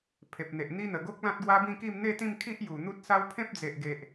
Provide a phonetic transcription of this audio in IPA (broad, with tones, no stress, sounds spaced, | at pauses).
pʰ e˨ p̚ n̪ e˨ ʔ n̪ i˦ n̪ ə˨˩ ɡ o˦ k̚ l ã˦ t̚ ɡ w a˦ b ĩ˥˧ k i˥˧ m n̪ e˥˧ t̪ ĩ˥˧ m kʰ i˦ ʔ j u˨˩ n̪ u˦ t̚ s a˦ w pʰ ẽ˦ p̚ d͡z e˨ ʔ ɡ e˨ ʔ